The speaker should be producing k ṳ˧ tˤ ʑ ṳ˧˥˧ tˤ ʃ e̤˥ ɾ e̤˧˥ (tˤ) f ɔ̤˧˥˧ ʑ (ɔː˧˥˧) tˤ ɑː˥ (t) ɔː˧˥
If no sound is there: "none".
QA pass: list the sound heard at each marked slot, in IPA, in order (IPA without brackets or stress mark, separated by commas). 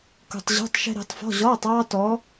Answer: tˤ, ɔː˧˥˧, t